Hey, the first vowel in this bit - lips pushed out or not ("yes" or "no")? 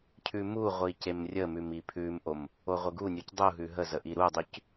yes